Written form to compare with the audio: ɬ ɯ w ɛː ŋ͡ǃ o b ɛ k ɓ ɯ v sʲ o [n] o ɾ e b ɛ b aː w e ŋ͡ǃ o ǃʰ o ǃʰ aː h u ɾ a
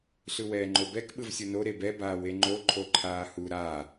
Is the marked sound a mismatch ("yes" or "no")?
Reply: no